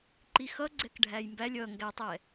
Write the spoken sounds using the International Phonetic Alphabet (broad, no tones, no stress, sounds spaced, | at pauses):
ǃ i x ʌ ɡ͡ǀ ɛ k ɖʱ æ j m b æ lʲ ʌ ŋ ɡ æ tˤ ɛ